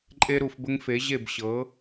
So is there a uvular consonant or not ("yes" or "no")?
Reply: no